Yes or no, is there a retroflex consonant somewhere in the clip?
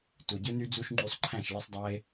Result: no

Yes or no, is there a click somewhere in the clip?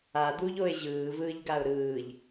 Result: no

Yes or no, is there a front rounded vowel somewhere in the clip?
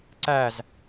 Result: no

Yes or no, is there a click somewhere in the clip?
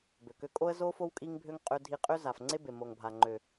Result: yes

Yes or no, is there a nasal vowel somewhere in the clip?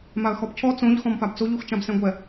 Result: yes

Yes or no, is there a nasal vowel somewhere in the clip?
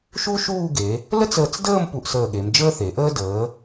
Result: no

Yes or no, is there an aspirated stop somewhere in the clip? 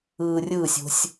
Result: no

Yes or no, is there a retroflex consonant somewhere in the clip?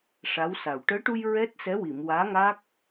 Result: yes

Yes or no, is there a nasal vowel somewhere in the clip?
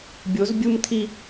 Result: no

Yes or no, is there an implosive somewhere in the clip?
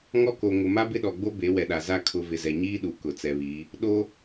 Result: yes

